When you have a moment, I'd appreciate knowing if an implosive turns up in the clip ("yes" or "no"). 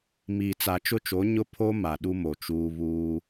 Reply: yes